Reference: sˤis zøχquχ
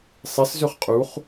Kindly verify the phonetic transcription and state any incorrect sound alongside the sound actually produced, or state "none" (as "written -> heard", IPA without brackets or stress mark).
q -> qʼ